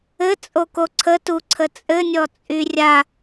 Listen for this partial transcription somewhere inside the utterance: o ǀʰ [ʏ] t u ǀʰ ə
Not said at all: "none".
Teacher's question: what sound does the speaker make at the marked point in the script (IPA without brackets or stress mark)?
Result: ə